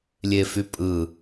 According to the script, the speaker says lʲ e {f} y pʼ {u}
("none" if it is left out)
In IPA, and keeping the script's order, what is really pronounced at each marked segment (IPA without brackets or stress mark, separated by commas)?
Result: f, ɯ